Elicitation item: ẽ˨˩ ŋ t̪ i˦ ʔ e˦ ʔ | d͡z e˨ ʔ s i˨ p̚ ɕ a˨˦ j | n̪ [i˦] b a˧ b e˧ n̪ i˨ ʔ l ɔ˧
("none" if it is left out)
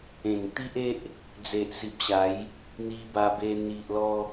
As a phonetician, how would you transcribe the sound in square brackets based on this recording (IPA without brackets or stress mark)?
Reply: i˧